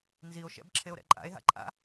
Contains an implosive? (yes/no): no